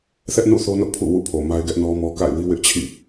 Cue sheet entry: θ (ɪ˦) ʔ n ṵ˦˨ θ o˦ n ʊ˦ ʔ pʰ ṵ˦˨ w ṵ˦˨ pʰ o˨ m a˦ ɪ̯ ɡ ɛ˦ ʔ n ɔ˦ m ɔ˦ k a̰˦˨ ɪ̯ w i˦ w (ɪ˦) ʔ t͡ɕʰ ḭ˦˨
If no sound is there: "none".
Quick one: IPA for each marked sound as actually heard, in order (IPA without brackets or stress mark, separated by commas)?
ɛ˦, ɪ˦